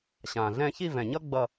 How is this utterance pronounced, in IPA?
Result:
ɕ ã˨˩ ɮ ɛ̃˥˧ ç i˥˧ v ɛ̃˨˩ ɲ ʌ˥ ɡ͡b ʌ˥˧

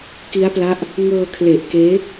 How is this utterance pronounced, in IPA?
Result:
k i˦˥ a̯ p l a˦˥ ʔ | ŋ ɤː˧ kʰ l e˨˩ ʔ k eː˦˥

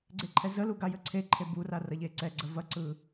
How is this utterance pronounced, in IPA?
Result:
ɡ͡ǀ e ǃʰ ɛ z ə l u ɡ a j ə ǀʰ e ǃʰ e b u r a r ɐ ʎ e ǀ ɛ ɡ͡ǀ ə v ɐ ǀ ɯ

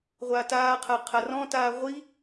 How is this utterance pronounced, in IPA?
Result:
ʁʷ aː t aː qʰ a qʰ a r ɔ̃ t aː ʁʷ i

